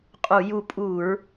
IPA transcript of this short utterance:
qʼ u˧˩˧ j u˦˨ pʼ u˧˩˧ ɹ

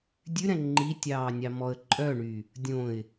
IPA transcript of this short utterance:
dʲ ʉ ɾ ɛ̃ ŋ͡ǃ i tʲ ɑː nʲ ɑ m ɔ ə̯ ǃʼ œ ɳ y | dʲ õ ɪ̯

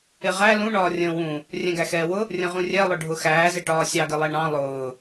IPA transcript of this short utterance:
ɪ ʁ æ l ũ ɳ ɒː rʲ ə̃ː w ũ | rʲ ɛ̃ ɡ æ x ɛː w ʊ | rʲ ə̃ ʁ ũ rʲ ɛ lˠ ʊ ɖʱ ʊ x æː z ɪ ʈ ɒː sʲ ɑ ɡ ɪ lˠ ɛ ɳ ɑ̃ lˠ ʊː

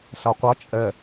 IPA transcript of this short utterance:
ɬ a qʷ a t͡ʃʼ ɛ

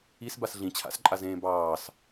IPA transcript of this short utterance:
i s b a s ɮ ĩ t͡ɕʰ a̰ s ǃʼ a z ẽː b ɑː s

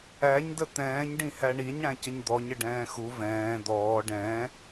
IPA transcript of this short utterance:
æ ɲ d ə t̪ ɛ̃ː ɲ ɖ ĩ h æ ɳ i ɲ ɽ æ̃ c ə ɲ d̪ ɔ ɲ ə ɖ ɛ̃ː x u v ɛ̃ː d̪ ɔː ɖ ɛ̃

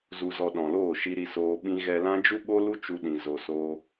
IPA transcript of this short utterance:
z u˧ z ɔ˧ ɗ ɔ̃˨ l oː˦˨ ʃ i˧ ɾ i˧ s oː˧ ɓ ĩ˦ ɣ ɛ˧ l ã˦ d͡ʒ u˦ ɓ o˦ l u˦ t͡ʃ u˧ ɗ ĩ˨ z o˨ s oː˧

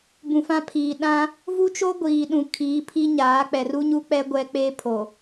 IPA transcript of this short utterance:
b ũ˨ f ã˦ pʰ iː˨ ɗ ã˦ | v u˦ t͡ʃ o˦ ɡʷ iː˨ ɗ ũ˨ kʰ iː˨˦ pʰ i˦ ɲ aː˨˦ k͡p ɛ˨ r u˦ ɲ u˦ k͡p ɛ˦ ɡʷ ɛ˦ k͡p eː˦ pʰ o˨

